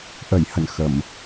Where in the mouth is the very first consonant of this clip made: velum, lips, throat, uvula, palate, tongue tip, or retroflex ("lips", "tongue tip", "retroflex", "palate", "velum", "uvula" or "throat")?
throat